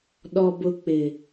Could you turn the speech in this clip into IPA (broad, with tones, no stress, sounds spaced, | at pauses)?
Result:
ɗ ɔ˨ b ʊ˨ k͡p ɪ˨